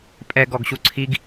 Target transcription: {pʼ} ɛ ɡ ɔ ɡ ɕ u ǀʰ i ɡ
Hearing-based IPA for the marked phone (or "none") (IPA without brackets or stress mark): pʼ